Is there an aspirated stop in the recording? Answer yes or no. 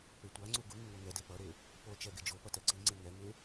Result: no